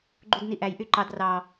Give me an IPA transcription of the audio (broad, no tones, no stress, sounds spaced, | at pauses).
ɡ͡ǃ u d n i ʔ æ j ʔ y ǃ ɑ d r ɑ